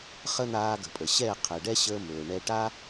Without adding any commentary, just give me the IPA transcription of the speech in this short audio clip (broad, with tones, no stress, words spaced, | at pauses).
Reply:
χə˦n̪aː˧ɡə̤˨pʼə˨ ɕɛ˦˨qʰɛ˨ɖɛ˦ɕəː˧ mɵː˨ɳɛ˧ ʈa˦